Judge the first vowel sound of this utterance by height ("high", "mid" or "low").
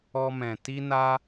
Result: mid